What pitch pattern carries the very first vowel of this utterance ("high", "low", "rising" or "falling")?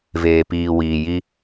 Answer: low